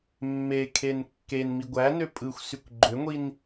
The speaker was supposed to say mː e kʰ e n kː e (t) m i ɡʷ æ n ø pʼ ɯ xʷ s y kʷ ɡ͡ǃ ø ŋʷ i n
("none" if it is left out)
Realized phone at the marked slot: n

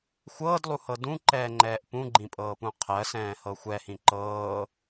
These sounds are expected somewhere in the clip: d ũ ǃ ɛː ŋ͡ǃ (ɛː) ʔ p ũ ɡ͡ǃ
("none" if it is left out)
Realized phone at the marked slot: ɛː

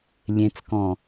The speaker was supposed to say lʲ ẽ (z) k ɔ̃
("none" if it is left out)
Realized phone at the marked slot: t͡s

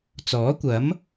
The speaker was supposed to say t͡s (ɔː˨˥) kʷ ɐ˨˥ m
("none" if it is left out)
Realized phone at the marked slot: ɔː˨˥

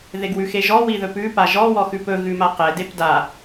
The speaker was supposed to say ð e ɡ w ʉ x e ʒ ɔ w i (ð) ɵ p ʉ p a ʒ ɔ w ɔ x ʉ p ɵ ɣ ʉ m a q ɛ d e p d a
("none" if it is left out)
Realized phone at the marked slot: ð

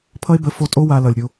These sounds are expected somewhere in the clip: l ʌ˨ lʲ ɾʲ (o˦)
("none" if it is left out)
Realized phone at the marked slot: o˧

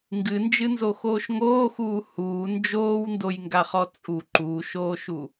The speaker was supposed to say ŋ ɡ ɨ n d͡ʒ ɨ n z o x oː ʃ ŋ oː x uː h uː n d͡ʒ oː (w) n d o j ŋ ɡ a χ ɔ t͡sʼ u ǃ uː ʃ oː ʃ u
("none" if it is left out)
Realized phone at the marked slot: w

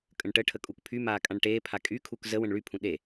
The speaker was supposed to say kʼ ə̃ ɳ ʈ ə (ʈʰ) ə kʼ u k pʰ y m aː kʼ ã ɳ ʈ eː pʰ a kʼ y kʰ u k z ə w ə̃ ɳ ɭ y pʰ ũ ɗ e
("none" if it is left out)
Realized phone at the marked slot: ʈʰ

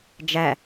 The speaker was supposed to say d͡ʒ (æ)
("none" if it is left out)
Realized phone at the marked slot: æ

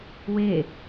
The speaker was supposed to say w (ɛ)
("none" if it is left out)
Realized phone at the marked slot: e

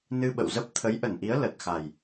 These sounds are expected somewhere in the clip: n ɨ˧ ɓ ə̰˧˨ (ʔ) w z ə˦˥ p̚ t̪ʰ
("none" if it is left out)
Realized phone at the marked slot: none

